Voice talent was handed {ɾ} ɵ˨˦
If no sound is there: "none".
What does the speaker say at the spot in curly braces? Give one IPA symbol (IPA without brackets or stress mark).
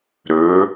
ɾ